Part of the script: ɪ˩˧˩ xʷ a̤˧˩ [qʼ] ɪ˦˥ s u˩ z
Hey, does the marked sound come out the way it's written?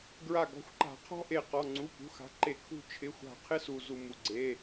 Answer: no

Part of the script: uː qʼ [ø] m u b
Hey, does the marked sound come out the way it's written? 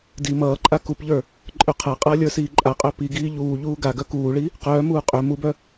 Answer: yes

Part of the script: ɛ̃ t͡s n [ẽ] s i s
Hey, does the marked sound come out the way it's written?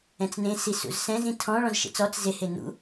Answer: yes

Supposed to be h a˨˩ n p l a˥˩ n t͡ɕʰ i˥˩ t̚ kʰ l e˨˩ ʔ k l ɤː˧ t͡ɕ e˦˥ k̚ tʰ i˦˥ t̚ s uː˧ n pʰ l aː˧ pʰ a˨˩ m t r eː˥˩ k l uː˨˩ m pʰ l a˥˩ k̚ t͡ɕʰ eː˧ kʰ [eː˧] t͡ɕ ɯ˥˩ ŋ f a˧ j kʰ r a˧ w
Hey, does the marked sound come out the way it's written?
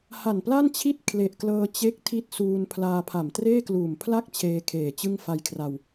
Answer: no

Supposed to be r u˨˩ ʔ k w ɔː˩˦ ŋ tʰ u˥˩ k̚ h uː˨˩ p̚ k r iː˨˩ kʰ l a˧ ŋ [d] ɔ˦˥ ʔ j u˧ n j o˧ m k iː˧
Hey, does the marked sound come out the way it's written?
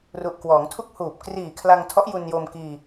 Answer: no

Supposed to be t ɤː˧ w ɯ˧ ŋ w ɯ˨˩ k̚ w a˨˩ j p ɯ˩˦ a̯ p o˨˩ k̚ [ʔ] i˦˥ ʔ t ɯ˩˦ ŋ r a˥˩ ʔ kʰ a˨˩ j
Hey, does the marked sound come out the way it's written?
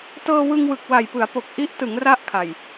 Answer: yes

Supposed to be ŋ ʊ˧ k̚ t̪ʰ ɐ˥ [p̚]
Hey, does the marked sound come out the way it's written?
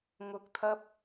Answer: yes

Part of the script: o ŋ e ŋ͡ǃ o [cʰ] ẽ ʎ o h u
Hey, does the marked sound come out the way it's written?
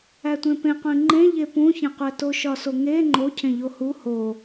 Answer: yes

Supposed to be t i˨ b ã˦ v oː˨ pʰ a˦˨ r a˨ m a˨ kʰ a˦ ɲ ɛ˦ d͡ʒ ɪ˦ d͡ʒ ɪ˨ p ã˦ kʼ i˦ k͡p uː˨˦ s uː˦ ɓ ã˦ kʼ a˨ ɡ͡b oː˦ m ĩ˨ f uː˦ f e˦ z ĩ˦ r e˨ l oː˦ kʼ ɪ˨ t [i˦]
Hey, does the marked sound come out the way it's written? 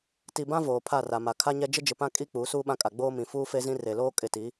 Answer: no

